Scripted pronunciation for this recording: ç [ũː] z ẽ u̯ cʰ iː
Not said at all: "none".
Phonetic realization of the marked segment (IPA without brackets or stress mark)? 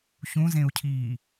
ũ